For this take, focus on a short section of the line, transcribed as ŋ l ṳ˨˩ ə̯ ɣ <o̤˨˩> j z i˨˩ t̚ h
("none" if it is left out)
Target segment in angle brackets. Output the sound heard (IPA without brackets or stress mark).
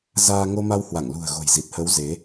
o̤˨˩